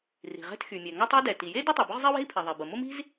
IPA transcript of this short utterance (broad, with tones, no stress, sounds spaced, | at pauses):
r i̤˩ ʁ ɛ̤˥ t x y˩ mʲ ɛ˩ ŋ a˥ tˤ ɛ˥ d ɛ˩ t i˩ j e˥ d u˥ tˤ ɛ˩ b ʊ˥ ʁ zˤ i˥ w e̤˥ i̯ pʰ e˩ ðˤ e˩ b ə˩ m ʊ˥ m i̤˥ z